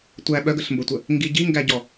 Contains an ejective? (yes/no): no